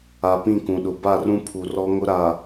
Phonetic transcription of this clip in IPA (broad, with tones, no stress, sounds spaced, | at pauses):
a˨ p ĩ˦˨ k ũ˨ ɗ ʊ˨ b a˦˨ r ũ˦ pʰ u˨ r ɔ˦ ŋ ʊ˦ ɾ a˨